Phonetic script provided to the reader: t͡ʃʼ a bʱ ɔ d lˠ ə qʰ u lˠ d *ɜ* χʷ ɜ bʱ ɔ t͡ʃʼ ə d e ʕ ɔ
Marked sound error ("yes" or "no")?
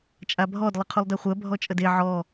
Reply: no